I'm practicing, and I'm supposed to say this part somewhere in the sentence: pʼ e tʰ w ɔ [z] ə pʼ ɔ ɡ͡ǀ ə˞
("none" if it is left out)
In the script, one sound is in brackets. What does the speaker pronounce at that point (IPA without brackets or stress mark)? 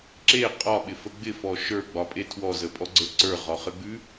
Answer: z